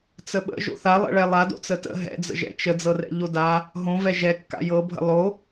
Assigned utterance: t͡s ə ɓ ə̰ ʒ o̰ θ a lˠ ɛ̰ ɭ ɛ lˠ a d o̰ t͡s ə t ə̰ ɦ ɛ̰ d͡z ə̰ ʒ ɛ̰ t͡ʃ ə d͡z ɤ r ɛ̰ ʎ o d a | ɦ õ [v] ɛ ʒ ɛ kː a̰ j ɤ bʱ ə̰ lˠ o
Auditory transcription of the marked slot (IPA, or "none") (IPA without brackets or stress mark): v